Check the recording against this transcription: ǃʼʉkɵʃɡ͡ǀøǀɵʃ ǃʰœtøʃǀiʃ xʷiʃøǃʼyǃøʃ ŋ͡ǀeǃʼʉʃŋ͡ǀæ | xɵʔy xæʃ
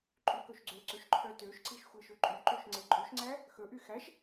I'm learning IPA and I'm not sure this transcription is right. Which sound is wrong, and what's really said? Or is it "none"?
none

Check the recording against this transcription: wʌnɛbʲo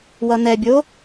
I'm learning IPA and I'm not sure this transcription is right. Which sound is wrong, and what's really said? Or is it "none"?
none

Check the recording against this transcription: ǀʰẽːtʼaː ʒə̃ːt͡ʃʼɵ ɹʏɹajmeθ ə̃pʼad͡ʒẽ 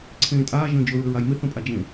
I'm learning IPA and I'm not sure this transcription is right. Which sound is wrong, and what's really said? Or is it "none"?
t͡ʃʼ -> d͡ʒ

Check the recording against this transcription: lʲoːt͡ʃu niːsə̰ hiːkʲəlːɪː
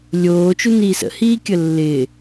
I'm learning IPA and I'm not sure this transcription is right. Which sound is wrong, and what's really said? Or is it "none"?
none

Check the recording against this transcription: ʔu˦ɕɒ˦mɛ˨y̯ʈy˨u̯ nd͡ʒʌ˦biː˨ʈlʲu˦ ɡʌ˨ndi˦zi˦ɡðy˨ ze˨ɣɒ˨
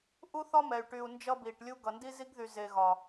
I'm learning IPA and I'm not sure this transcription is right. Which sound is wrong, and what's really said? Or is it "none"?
ɕ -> θ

